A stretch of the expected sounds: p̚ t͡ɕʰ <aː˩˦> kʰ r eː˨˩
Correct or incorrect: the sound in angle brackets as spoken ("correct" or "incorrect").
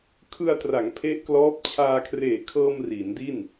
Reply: incorrect